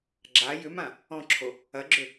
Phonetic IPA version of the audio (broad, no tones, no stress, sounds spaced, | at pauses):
ɡ͡ǁ a j ʏ m ã | ɔ̃ ǁʰ o | ɐ ɡ͡ǁ ʏ